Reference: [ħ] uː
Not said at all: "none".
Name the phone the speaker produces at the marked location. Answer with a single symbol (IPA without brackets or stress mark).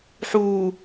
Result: ħ